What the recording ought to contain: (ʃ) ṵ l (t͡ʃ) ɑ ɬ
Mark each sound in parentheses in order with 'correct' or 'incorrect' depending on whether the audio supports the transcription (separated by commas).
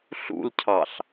incorrect, incorrect